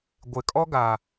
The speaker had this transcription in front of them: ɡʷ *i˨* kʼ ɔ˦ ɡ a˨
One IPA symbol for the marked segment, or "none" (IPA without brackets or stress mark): ɪ˨